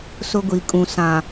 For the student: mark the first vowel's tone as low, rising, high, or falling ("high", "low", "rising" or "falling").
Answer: high